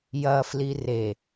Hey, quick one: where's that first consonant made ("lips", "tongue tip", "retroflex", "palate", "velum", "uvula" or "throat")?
palate